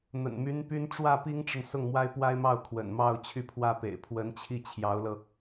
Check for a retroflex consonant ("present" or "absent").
present